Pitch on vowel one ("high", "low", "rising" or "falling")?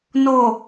low